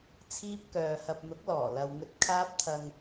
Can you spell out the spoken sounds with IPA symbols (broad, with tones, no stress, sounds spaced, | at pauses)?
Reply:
t͡sʰ iː˥ p̚ k œː˨ h ɐ˧ p̚ n̪ ʊ˨˥ k̚ l ɔː˨˩ l ɐ˨ w ŋ ɵ˧ t̚ kʰ aː˥ p̚ t̪ʰ ɐ˧ ŋ